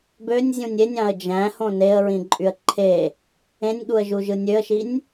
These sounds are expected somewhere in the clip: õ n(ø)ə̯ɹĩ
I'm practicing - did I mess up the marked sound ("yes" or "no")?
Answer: yes